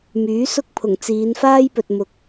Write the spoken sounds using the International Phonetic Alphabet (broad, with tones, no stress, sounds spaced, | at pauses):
m yː˨˥ s ʊ˥ k̚ pʰ ʊ˨˩ ŋ t͡s iː˨˧ n f aː˥ j p ɵ˨ t̚ m ʊ˨ k̚